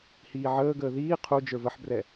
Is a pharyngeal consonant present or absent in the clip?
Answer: present